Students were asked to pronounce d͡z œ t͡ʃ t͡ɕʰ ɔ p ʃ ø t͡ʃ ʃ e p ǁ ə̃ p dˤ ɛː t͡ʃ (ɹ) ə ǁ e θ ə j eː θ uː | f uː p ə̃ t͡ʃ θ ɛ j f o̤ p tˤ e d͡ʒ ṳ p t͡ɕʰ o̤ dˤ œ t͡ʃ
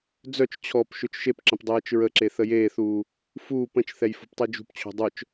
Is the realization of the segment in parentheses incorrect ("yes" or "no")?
no